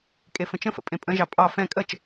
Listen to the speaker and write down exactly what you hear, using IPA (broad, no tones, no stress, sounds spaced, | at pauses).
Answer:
kʼ e f ə̃ t͡ʃ ə̃ f ə̰ pʼ ẽ pʼ ə̃ ʒ ɑ pʼ ɑ f ɛ̃ kʼ ə t͡ʃ